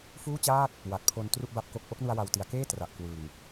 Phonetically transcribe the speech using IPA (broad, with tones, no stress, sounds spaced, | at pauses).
f uː˥˩ t͡ɕ aː˥˩ t̚ | w a˨˩ t̚ pʰ o˧ n t r u˥˩ ʔ b a˥˩ p̚ k o˦˥ k̚ ʔ o˦˥ k̚ n u˧ a̯ w a˨˩ w t i˨˩ a̯ k eː˥˩ t r a˨˩ ʔ k w ɯ˨˩ ŋ